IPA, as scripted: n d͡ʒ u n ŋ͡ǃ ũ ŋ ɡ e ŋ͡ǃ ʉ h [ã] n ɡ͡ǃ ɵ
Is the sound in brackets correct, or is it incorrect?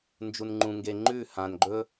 correct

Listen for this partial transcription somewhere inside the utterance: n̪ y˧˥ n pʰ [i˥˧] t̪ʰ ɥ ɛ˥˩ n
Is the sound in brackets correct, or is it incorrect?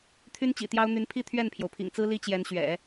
correct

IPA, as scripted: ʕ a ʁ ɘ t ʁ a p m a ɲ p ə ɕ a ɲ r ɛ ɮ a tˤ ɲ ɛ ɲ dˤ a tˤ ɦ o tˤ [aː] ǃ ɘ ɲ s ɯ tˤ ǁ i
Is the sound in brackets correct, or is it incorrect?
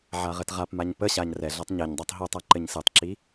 incorrect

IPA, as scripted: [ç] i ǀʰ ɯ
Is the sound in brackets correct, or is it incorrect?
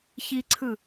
correct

